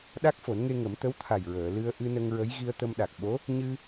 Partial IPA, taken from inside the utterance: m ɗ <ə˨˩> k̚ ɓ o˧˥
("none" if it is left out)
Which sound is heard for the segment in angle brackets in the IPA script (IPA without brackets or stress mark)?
a˨˩